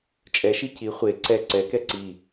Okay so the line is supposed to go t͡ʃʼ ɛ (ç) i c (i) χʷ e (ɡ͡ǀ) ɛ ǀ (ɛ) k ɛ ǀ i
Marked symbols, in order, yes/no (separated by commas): no, yes, no, yes